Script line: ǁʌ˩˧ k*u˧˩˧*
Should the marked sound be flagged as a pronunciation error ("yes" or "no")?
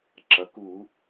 no